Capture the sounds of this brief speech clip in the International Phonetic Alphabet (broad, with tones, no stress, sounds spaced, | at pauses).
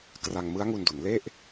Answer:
k r a˧ ŋ m ɯ˦˥ a̯ ŋ u˧ n d u˩˦ n l e˥˩ ʔ